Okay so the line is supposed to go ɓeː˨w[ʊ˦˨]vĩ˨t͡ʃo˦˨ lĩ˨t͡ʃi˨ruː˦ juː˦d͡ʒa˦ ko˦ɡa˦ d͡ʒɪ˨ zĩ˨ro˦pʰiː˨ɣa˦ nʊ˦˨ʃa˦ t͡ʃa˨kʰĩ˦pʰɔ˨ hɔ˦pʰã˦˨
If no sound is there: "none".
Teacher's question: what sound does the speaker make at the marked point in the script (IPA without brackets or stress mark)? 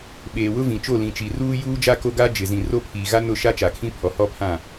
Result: ʊ˦